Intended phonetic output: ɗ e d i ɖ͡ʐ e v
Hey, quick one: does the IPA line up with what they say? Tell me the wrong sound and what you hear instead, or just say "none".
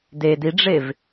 ɗ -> d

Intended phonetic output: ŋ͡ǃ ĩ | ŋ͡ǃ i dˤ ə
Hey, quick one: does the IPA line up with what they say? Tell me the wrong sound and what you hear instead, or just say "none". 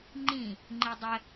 none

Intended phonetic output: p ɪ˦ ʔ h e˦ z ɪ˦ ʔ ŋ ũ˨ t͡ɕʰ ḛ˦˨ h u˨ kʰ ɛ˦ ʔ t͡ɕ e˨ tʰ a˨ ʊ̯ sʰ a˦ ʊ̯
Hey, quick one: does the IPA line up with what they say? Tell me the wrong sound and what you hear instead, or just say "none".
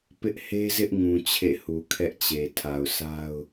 none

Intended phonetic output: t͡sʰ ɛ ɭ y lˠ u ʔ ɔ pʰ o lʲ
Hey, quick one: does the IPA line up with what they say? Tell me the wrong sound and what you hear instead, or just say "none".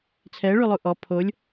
none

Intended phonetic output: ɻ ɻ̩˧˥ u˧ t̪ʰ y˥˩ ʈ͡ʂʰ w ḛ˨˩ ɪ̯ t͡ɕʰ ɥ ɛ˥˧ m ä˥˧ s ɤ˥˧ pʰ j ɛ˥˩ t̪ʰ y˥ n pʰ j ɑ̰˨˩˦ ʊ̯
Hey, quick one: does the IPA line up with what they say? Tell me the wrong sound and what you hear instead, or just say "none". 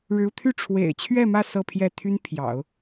none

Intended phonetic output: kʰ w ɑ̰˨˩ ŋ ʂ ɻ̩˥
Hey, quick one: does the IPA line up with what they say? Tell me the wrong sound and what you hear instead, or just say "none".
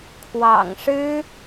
none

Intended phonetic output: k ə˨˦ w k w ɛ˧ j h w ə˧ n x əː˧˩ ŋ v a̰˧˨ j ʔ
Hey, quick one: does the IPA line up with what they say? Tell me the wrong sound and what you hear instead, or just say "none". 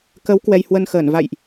ŋ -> n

